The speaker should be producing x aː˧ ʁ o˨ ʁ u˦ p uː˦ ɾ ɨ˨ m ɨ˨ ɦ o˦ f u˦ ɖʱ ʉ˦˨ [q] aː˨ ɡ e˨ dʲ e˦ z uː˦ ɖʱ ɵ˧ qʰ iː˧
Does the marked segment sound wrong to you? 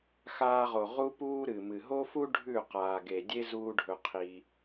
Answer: no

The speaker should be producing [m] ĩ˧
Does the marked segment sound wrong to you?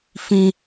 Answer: yes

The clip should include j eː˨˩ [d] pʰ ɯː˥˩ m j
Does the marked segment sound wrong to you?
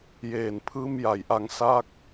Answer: yes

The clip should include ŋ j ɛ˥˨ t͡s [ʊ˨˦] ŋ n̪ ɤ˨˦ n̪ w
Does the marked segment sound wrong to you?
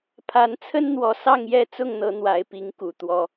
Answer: yes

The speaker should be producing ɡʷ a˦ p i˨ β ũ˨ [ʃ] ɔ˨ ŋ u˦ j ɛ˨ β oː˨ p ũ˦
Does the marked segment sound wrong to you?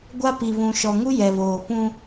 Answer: no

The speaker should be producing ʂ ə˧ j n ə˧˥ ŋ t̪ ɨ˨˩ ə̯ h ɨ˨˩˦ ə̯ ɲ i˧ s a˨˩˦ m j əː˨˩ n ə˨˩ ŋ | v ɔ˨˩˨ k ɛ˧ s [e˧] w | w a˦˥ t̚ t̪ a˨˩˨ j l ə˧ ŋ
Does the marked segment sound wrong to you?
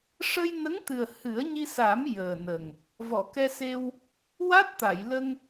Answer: no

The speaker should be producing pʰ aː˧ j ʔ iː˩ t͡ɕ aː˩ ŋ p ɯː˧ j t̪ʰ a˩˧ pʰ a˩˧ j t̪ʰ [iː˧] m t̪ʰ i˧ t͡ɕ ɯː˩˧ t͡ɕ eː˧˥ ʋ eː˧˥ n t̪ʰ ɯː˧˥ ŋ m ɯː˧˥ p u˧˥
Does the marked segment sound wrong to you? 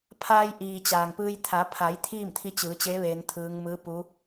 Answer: yes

